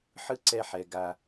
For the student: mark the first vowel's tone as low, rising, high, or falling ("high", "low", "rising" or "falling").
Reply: high